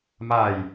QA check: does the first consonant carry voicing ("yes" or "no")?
yes